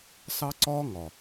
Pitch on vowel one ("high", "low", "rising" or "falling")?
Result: high